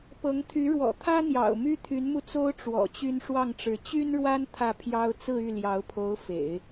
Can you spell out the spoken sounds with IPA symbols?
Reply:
pɤ˧˥ŋt̪ʰy˧˥ ɻwɔ̰˨˩t̪ʰä˥n̪jɑ̰˨˩ʊ̯ my˥t̪ʰy˧˥nmu˧t͡so˥ʊ̯ ʈ͡ʂwɔ̰˨˩t͡ɕy˥n ʂwɑ˥˩ŋʈ͡ʂɻ̩˧˥ t͡ɕy˥nɻwa˥n t̪ʰä˥˩pʰjɑ˥ʊ̯ t͡sɹ̩˥˧y˥˩ljɑ˧˥ʊ̯pʰo˧˥ʊ̯ fḛ˨˩˦ɪ̯

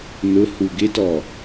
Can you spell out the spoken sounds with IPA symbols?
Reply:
nʊ huɡɪtɔ

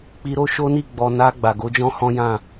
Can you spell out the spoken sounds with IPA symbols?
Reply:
k͡pi˧ɾo˦ ʃo˦ni˦˨ ɡ͡bɔ˨ na˧ ɡ͡ba˨ɡo˨˦d͡ʒɔ̃˦ hɔ̃˦jã˦˨

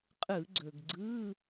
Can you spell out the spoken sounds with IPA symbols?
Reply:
qʼɯ˧˩˧ɡ͡ǀɵ˩ɡɡ͡ǀɯ˧˥˧

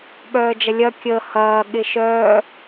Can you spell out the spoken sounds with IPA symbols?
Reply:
ɓœːd͡ʒɐlʲɐ kʲə hɐː ɠɪʃœː

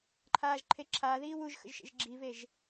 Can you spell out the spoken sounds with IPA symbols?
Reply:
ǃʰaːʒǃʰeǁʰaːðiː wuʒxə̰ʒ ʃḛʒɡ͡ǁiveʒ

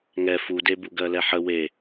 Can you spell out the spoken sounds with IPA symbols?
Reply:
ŋɛ fude buɡɜlɛħə we

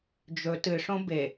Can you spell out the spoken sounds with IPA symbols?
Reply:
d͡ʒɵ tɨʂõ be

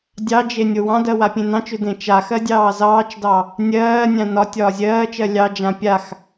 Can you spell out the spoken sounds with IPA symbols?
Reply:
dʲɑd͡ʒe nʲowɑ̃dɜ wapʲẽnɑ̃t͡ʃʏ dẽt͡ʃaxɜ dʲɑːzɑːt͡ʃdɑ | nʲɜːnʲã nɒ tʲɒːzʲɜːt͡ʃɜ lʲɑd͡ʒã pʲax

